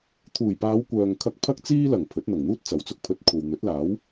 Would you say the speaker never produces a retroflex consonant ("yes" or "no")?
yes